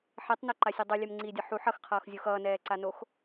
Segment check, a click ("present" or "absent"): present